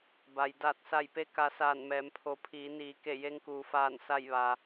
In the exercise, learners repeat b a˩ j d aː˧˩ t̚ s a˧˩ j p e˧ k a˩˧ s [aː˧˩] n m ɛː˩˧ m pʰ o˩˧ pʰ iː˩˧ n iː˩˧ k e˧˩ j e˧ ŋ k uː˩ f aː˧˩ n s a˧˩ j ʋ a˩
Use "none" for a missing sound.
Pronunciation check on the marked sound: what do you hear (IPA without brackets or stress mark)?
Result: aː˧˩